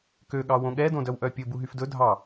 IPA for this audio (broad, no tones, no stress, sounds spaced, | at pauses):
k ø ɠ ɑ w õ ɠ ɛ d õ d œ w ʔ œ pʲ ɵ b u ɦ y f d ɵ dʱ ɑ